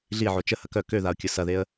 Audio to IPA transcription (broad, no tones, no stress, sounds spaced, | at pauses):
ɮ i ʕ o t͡ʃ ə h ɐ k œ k ø ð a ʊ̯ kʲ ʊ s ɐ ð e ə̯